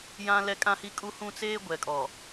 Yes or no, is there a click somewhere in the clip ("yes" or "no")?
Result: no